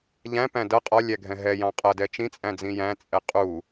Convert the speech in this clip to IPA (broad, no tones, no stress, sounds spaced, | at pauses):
ʎ æ̃ p æ̃ d ʌ qʼ ɒ lʲ æ ɡʱ ɛ̃ ɦ ɛ j ɑ̃ qʼ ʌ d ɛ t͡ʃ ĩ t͡sʼ æ̃ d͡z ĩ j æ̃ t͡sʼ ɛ qʼ u